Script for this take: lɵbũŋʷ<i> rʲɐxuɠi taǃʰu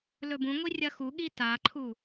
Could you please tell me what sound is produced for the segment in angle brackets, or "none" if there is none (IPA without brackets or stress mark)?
i